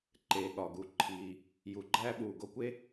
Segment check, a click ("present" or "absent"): present